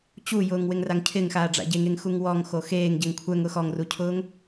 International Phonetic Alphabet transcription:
t͡ɕujʊːŋ wɪŋraŋcʰɪŋxaː ɖ͡ʐa̰ɟeŋeŋ xuŋwɔŋxo xeːŋ ɟɛŋkʷʰɛŋ ʊxɔŋrucʰʊːŋ

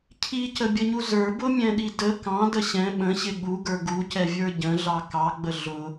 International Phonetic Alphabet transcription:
cʰicəbʲəɲu zə˞bʊmʲɛ̃ɗi də kɑ̃də ɕɛ̃ ɓə̃ɕɪ ɠuɡə˞ ɡucɛvʲə˞ ɟə̃ɮɑ kɑɡ͡bə ɮʊ

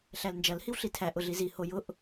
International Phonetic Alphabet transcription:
ɬælnd͡ʒɐl hiwɬitʰæ ʔʊɮizi hojʊʔ

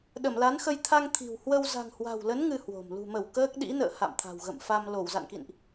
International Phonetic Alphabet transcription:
ɗə˧˩mla˨˦nxə˧j t̪ʰa˧ŋ t̪ʰi̤˨˩w hwə˧w za̤˨˩ŋhwa̤˨˩wlə˨˦n ŋɨ˧hwo̤˨˩m lṳ˨˩mə˧˩w kəː˦˥k̚ɗḭ˧˥nə̰ː˧˨ ha̰˧˨mt̪ʰa̤˨˩wɣə̰˧˨mfa˧m lo˧˩wza̰˧˨nkḭ˧˨nʔ

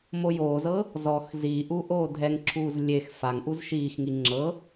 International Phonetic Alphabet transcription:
mojoːzɤ | zɔx ziːʔuːʔ oːdʱɛŋǁʰuːz lʲex faŋʔuz ʃiːxŋi ŋ͡ǁɤ

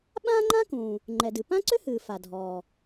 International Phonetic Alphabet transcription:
ɓãː˥ŋ͡ǃã˥kũː˩ | ŋ͡ǃɛ˩dɨ˩ pã˥ǀʏ˥hɨː˩ fa˩dʱɔː˩

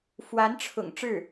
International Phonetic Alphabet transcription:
fwa˧˥nʈ͡ʂʰʊ̰˨˩ŋ ʈ͡ʂɻ̩˥˩

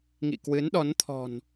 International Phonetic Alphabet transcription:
ŋḭ˧˨kwɨ˨˦nɗɔ˨˦nt̪ʰɔ̤˨˩n

